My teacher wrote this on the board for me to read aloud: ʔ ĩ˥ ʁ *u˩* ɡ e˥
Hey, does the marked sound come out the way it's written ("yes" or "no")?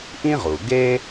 yes